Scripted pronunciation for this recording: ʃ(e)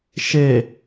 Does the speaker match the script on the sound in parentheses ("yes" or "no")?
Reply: yes